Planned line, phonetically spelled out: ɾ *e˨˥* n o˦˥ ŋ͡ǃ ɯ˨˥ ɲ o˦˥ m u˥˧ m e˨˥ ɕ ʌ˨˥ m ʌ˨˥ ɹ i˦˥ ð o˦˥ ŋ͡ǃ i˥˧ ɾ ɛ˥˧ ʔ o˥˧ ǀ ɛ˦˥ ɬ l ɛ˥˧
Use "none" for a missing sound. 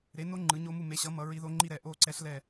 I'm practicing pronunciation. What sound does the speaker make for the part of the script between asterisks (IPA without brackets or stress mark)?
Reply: e˨˥